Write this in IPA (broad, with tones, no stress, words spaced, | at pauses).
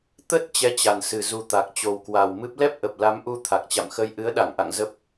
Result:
t̪ə˦˥t̚ t͡ɕɛ˧ t͡ɕa˨˩nsɨ˨˩ zu˨˩ t̪a˨˩k̚t͡ɕo˨˩wkwa˨˩wmɨ˦˥p̚ lɛ˦˥p̚ʔə˨˩p̚ la˨˦mʔu˧ t̪ʰa˨˩k̚t͡ɕa̰˧˨m xə˧j ʔɨ˨˦ə̯ɗa˧˩ŋʔa̰˧˨ŋ zə˦˥p̚